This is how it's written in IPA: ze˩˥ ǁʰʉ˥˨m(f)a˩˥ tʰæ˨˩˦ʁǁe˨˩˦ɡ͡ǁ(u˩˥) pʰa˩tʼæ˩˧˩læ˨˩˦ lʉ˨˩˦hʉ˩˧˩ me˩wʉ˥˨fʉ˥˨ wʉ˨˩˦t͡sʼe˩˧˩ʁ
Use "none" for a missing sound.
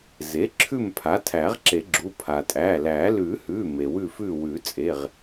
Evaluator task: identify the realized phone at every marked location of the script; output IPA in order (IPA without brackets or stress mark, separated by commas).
pʰ, u˩˧˩